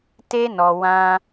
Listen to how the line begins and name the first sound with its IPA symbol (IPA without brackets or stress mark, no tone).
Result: t